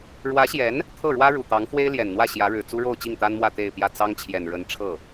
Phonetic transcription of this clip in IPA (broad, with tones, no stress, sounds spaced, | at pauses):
ɻ w ä˧˥ ɕ j ɛ˧˥ n | t̪ʰ ɤ˥˩ ɻ w ä˥ ɻ u˨˩ t̪ ɑ˧˥ ŋ x w e˥ ɪ̯ l j ɛ˨˩ n n̪ w ä˥˩ ɕ j ä˧˥ ɻ ɻ̩˨˩ t͡s u˥ ɻ o˥˧ ʊ̯ t͡ɕ i˥˩ ŋ t̪ a˥ n m w ä˥˧ t̪ e˥˧ ɪ̯ p j ä˥˩ t͡s ɑ˥ ŋ t͡ɕʰ j ɛ˨˩ n ɻ ə˧˥ n ʈ͡ʂʰ ɤ˥˩